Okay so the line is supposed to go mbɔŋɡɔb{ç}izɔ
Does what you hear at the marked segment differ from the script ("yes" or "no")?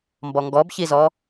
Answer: no